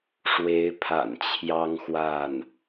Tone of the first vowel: rising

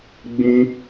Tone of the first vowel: high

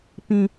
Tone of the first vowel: low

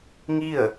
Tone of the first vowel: falling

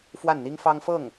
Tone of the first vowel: falling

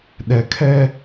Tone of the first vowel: low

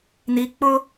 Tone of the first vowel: high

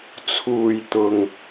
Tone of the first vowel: low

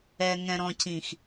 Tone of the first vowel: low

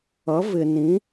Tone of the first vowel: rising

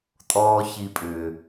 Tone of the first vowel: high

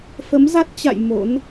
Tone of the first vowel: rising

